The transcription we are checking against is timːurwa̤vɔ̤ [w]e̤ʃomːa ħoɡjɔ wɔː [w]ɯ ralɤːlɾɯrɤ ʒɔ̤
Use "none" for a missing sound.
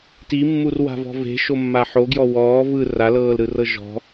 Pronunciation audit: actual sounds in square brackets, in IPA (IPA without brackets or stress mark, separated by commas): v, v